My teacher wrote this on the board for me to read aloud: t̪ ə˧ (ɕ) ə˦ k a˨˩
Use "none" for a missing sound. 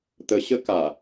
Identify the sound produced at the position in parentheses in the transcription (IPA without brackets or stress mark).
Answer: ɕ